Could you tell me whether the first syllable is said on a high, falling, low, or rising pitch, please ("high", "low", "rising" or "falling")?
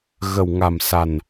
low